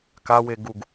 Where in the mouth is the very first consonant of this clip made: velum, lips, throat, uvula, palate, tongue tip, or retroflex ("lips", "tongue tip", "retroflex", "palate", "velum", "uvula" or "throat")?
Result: velum